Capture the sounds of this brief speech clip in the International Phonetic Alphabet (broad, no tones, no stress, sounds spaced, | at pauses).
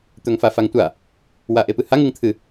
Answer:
t̪ ɵ ŋ f a f a ŋ tʷ a | w a ʔ e p ɨ h a ŋ ɨ ŋ t̪ʰ ɨ